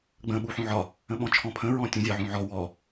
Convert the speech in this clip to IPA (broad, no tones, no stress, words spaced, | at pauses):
ɡ͡bə̃ ɓuħũʕɒ | ə̃ɓɔ̃t͡ʃʰɔ̃pʰə̃ ɹɔ̃tʲũ zʲɒʕũʕɔ wɔ